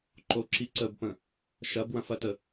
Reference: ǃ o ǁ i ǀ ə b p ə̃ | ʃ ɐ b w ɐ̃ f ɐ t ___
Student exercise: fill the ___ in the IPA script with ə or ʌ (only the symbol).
ə